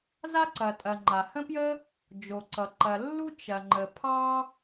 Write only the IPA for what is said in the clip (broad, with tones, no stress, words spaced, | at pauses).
za˥ǀɐ˩tʼɐ˩ ŋ͡ǃa˩hə̃˥pjə˥ | d͡ʒo˩ǀʌ˩ ǃɐ˩lːu˥ t͡ʃɐ˩ŋ͡ǃə˩ pʰɑ˥